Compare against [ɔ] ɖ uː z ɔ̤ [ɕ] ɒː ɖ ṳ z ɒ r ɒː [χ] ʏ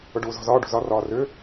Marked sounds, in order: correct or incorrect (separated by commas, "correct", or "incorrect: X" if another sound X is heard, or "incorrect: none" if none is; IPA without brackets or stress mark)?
incorrect: ʊ, incorrect: z, incorrect: r